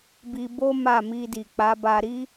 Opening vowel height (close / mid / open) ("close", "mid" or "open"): close